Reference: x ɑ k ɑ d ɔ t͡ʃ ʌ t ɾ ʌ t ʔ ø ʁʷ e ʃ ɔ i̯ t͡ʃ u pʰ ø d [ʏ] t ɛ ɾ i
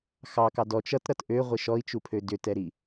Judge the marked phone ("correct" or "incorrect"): correct